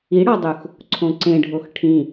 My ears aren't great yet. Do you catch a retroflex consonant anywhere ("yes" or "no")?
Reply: yes